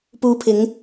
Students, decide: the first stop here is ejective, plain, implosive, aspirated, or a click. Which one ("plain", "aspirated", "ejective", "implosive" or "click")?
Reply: plain